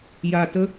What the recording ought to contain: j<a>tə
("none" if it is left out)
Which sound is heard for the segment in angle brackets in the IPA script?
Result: a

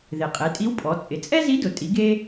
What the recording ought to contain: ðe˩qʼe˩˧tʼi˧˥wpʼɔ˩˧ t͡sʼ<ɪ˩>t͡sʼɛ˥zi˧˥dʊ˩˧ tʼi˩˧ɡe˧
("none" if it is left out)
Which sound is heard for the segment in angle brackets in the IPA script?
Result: ɪ˩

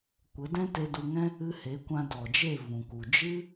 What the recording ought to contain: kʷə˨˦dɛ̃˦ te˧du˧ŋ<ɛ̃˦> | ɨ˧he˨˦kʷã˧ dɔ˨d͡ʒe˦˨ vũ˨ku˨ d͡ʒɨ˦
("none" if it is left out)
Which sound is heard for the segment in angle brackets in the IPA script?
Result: ɛ̃˦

